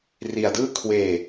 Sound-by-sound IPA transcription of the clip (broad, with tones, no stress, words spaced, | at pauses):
ri˧a̯dɯː˥˩ kʰweː˧